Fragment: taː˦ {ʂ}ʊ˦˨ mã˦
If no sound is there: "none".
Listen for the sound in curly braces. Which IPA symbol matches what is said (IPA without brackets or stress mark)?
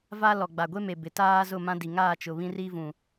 z